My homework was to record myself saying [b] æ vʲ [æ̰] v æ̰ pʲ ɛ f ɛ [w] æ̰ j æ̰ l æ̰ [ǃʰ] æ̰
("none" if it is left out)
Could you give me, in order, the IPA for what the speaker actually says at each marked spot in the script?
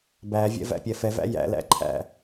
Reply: b, ɛ̰, v, ǃʰ

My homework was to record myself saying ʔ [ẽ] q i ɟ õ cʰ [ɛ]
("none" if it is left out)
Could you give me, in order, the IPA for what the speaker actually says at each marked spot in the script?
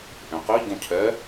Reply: ẽ, ɛ

